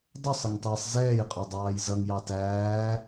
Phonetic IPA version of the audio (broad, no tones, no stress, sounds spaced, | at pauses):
dˤ ʊ sˤ ə ŋ tˤ ɛː sˤ z ɛː j qʼ ɔ dˤ ɑː j z ʌ ŋ j ɑ t æː